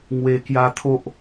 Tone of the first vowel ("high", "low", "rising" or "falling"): low